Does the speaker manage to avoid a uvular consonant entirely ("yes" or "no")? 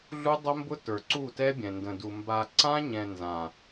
yes